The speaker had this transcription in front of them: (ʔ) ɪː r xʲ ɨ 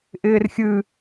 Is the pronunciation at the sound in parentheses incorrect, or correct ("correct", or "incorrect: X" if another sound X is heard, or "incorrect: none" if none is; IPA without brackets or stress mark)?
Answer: correct